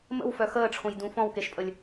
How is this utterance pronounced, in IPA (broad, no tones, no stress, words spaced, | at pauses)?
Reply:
mə̰wfœ xəːʈ͡ʂʰõjdũ fɔ̃wkeʃpʼəlʲ